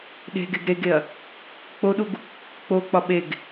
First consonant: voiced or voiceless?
voiced